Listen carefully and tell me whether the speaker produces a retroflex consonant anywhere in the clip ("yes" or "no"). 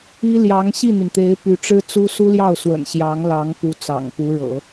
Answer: yes